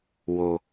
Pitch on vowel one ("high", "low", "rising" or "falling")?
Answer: low